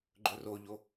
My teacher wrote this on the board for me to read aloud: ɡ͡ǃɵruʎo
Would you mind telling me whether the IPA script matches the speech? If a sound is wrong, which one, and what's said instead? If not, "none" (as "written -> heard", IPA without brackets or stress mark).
u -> o